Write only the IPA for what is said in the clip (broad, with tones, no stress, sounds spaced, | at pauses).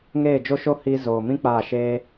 ŋ eː˦˨ d͡ʒ o˦ ʃ o˦ h iː˧ z oː˨ m ĩ˦ k͡p aː˦˨ ʃ eː˦